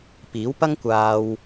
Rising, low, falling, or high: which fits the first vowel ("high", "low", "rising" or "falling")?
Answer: rising